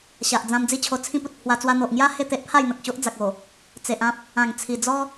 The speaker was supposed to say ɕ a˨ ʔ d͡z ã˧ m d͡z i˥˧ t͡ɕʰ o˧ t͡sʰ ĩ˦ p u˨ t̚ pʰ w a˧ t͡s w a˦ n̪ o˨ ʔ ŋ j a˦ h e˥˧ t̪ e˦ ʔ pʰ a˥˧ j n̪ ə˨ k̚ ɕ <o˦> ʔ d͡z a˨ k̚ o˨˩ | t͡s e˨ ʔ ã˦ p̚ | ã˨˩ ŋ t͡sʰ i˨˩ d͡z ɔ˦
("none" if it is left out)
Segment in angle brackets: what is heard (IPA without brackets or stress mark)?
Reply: o˦